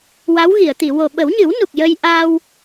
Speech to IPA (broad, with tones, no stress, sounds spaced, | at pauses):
w a˧˥ w ɣ i˨˩˨ ə̯ t̪ i˨˩˨ w o˨˩ ɓ ə˨˩˦ w ɲ ɨ˨˩˦ w n u˨˩ k̚ j ə˧ j ʔ aː˧ w